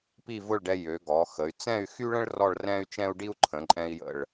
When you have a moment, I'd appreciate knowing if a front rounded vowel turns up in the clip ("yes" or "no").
yes